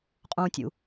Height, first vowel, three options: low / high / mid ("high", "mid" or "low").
high